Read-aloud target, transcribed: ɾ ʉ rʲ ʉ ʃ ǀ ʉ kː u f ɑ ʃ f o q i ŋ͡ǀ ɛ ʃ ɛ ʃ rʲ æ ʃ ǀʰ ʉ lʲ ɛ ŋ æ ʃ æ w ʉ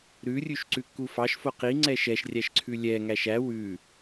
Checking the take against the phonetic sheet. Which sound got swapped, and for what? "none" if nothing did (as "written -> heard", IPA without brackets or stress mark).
none